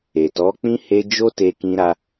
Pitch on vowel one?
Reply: low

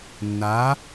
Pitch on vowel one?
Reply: rising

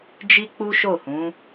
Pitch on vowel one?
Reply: high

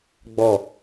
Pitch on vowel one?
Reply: falling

